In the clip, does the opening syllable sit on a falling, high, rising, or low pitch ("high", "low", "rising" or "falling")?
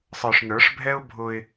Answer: low